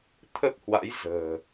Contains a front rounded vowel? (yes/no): no